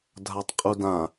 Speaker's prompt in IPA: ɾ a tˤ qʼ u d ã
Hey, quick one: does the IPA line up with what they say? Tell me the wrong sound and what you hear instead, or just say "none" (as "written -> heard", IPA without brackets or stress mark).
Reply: ɾ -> dʱ